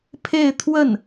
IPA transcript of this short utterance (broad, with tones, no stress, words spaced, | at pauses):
pʰe˥˧ɪ̯t̪ʰwə˥˩n